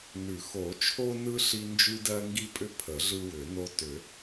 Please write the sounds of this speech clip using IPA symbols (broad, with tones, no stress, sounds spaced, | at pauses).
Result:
n ʉ˨˩˦ x o˨˩˦ t͡ʃʰ o˦ n ɯ˦ ɬ i˦ n d͡ʒ ʉ˦ d ɜ˦ ŋ ɡ i˦ pʼ ʏ˦ pʰ ə˨˩˦ ɮ ɯ˦ w ʏ˨˩˦ n o˦ t ʏ˨˩˦